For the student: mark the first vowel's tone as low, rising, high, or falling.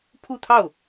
falling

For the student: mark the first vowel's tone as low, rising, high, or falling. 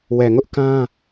low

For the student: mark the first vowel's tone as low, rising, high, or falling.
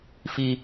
high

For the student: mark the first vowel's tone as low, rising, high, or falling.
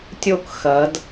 falling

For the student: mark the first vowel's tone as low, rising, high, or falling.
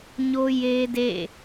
high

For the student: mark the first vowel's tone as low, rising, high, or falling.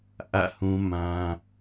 falling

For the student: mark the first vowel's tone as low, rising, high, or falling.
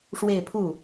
falling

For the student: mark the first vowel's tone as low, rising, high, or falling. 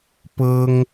high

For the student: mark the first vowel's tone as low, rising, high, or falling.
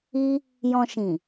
high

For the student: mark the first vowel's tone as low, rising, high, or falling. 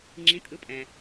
rising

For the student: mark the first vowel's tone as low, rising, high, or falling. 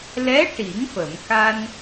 rising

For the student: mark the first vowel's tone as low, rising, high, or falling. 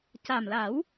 low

